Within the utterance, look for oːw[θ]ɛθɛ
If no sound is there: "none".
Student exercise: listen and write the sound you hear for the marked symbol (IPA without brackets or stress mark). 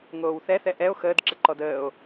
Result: θ